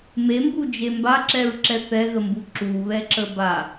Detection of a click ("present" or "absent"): present